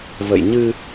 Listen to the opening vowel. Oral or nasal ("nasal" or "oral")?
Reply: oral